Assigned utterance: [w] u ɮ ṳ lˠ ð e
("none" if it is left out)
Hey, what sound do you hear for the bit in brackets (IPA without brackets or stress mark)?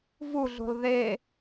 v